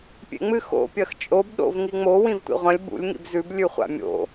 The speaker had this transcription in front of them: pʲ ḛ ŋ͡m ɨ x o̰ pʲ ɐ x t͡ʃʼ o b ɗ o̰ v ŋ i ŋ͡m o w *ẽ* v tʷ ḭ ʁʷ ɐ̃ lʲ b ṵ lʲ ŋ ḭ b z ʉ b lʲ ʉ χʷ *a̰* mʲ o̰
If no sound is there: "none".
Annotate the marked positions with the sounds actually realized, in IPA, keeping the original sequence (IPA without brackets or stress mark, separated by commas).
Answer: ĩ, a̰